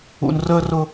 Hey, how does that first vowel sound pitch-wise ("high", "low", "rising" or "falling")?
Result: low